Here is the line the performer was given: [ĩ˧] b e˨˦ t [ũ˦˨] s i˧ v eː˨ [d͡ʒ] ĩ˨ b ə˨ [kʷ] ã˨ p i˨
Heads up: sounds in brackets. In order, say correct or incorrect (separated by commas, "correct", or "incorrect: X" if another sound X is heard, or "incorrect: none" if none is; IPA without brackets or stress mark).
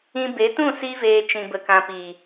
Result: correct, correct, incorrect: t͡ʃ, incorrect: k